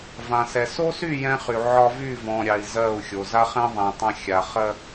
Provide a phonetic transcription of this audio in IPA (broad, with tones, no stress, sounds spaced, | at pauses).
v ã˨ s ɛ˨ s o˦ s y˦˨ j ɛ̃˦ χ y˨ ʕ ɒ˦ v y˦˨ v ɔ̃˨ ɾʲ ɑ˨ i̯ z ɜ˦˨ u̯ xʲ o˨ z a˦ χ ɛ̃˦ ðˤ ɛ̃˨ tˤ ã˦ xʲ a˨ χ ɜ˦